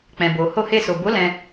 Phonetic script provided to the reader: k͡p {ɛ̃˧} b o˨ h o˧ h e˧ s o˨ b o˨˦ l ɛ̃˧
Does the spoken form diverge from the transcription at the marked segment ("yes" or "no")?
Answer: yes